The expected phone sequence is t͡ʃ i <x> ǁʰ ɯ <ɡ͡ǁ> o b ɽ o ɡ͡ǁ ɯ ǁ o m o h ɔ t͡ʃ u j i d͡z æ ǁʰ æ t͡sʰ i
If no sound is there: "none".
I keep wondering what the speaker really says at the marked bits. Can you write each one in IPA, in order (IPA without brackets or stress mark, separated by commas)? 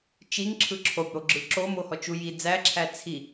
ŋ, ǁʰ